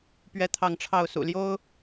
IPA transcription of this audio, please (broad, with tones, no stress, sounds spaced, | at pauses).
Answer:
p ɥ ɛ˥˧ t̪ʰ ɑ˥˧ ŋ ʈ͡ʂʰ ɑ˥˩ ʊ̯ s ṵ˨˩ l j o˥ ʊ̯